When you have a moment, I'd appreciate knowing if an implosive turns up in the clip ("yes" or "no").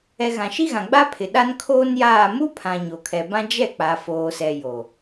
yes